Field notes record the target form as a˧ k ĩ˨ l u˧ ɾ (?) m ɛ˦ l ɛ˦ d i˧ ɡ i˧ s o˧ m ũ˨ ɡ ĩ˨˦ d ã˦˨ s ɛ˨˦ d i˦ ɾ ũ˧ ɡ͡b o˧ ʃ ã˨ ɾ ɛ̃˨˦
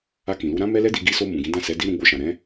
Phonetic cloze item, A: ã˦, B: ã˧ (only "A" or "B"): A